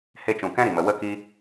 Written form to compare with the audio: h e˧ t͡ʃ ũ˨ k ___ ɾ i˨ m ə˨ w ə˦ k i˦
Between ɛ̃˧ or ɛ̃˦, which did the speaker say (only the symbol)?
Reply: ɛ̃˦